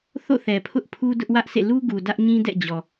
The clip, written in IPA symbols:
θo̰˦˨θɛ˨ pʰʊ˦ʔpʰu˦ dʊ˦ʔwä˦ʔsʰḛ˦˨ lu˦ɡu˨ dä˦ʔɲĩ˦dɛ̰˦˨d͡ʑɔ˨

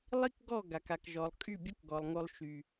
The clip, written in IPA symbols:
lˠi˦kɡɔ˦˨ ɡa˨ka˨kʒɔ˨lˠ kʼy˦˨bʲo˦kɡɔ˨lˠŋo˦lˠ ʃy˦

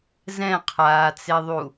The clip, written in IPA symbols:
zɛ̃qʰaːt͡seðˤu

